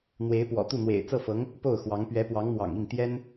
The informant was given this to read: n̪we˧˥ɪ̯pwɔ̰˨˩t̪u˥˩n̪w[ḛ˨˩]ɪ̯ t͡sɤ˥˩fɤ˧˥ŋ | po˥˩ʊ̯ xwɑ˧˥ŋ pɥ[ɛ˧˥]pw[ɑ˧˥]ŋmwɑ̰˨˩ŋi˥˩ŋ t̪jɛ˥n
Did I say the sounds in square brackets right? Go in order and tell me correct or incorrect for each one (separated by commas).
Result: correct, correct, correct